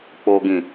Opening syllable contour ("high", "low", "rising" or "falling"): low